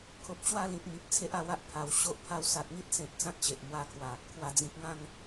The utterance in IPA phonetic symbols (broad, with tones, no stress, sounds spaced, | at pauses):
kʰ o˨ p̚ t͡ɕ w a˥˧ l ĩ˨ t̚ m i˨ p̚ t͡sʰ e˦ ʔ a˧ w a˦ ʔ pʰ a˨˩ w ɕ o˦ ʔ pʰ a˧ w s a˨ t̚ ŋ i˦ t̚ s ẽ˨ t̚ t͡s ã˦ t̚ t͡ɕ e˨ ʔ m w a˧ kʰ w a˨˩ | kʰ w a˨˩ d͡z ĩ˨ k̚ ŋ ã˥˧ ŋ